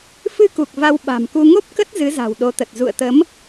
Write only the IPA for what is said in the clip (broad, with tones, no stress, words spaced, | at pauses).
fɨ˧ku˨˩k̚ va˧wɓa̤˨˩mku˧ ŋo˦˥p̚kə˦˥t̚ zɨ˨˦za̤˨˩wɗo˨˦t̪ə˨˩t̚ zṵ˧˨ə̯t̪ə˨˦m